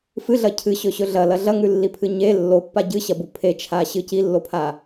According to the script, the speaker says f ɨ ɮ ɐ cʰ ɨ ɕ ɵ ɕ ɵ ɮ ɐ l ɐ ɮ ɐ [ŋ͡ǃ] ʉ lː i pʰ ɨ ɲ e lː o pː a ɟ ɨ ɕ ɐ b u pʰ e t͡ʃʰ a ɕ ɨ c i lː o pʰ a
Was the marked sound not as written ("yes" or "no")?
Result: yes